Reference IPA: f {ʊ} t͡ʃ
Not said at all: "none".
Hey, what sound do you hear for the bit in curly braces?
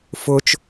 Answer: ʊ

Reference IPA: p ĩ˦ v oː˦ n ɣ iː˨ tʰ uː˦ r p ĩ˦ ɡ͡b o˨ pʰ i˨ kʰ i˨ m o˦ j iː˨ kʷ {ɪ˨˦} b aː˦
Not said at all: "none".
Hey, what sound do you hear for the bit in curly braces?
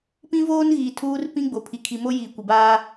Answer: ɪ˨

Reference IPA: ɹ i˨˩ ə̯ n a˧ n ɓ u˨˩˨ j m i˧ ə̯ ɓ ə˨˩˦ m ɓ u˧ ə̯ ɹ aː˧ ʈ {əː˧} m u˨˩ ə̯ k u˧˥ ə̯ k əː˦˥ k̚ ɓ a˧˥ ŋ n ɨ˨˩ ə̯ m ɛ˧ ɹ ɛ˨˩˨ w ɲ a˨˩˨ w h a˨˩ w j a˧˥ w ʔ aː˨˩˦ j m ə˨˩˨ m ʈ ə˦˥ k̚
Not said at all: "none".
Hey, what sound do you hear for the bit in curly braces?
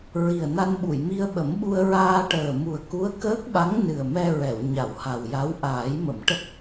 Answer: əː˨˩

